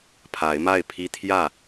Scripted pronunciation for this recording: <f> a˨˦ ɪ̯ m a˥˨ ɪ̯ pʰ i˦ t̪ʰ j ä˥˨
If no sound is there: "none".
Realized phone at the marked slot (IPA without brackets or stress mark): pʰ